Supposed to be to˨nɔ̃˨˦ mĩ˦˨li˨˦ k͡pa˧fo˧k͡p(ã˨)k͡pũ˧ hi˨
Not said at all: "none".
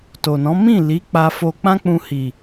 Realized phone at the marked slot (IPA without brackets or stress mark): ã˦